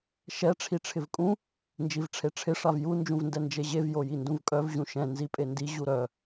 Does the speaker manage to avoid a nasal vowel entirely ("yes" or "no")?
no